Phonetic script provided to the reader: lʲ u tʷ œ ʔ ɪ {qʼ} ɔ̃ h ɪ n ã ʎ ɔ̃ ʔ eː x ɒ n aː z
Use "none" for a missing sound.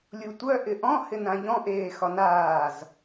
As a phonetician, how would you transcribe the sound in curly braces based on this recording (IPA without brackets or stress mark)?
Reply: ʔ